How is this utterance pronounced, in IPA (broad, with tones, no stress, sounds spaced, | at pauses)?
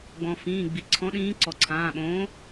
ɡ͡b ɔ̃˩ f ĩː˩˧˩ ɡ͡b i˩ ǀʰ ɔ̃˨˥ ɗ ĩː˨˥ ǀ ɔ˩ ǀʰ ãː˩˧˩ ɓ õː˨˥